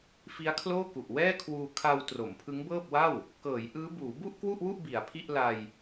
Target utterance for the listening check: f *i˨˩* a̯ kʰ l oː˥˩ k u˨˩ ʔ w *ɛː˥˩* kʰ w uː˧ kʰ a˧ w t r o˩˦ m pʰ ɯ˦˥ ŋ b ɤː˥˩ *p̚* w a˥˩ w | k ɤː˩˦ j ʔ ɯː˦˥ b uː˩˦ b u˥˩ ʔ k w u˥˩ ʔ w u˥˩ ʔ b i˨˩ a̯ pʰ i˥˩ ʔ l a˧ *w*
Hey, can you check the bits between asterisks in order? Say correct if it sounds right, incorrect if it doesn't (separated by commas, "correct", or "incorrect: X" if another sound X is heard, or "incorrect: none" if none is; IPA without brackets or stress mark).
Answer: incorrect: i˦˥, correct, correct, incorrect: j